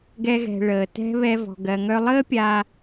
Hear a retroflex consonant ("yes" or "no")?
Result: yes